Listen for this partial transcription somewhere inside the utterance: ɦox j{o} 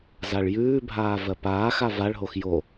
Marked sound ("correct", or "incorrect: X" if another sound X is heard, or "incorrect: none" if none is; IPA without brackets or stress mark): correct